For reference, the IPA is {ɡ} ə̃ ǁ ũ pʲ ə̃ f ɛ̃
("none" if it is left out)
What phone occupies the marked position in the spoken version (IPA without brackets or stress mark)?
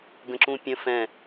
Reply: ɡ